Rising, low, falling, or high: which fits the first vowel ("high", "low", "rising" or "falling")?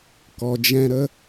low